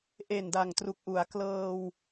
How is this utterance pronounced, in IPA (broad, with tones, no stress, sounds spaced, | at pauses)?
ʔ e˨˩ n d a˨˩ ŋ t r u˨˩ k̚ ʔ u˩˦ a̯ k l ɤː˧ w